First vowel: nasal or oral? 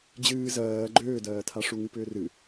oral